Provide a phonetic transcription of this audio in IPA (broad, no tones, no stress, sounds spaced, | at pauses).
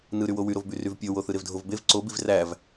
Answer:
n ɯ ɾ y w o w y ɾ o v b y r y v pʲ o w o θ ɯ ɾ e v dʱ o v b e v ǀ o b i v r æ v